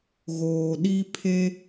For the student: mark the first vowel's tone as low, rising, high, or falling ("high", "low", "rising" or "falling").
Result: low